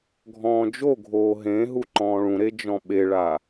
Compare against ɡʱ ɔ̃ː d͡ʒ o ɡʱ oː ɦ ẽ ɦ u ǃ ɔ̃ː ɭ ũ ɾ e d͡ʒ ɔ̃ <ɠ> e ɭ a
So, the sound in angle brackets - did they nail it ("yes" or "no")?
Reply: no